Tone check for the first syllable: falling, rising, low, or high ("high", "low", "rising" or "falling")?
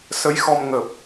rising